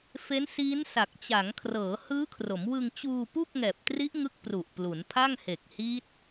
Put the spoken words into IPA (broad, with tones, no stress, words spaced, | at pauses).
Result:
fe˦˥nsiː˦˥nsa˨˩k̚ t͡ɕa˩˦ŋkʰrɤː˩˦ hɯː˦˥kʰro˩˦mwɯ˧ŋ t͡ɕuː˧pu˥˩k̚ ŋɛː˨˩p̚tri˦˥ʔŋɯ˦˥k̚ pru˨˩ʔplu˩˦npʰa˥˩ŋ he˨˩k̚hi˦˥t̚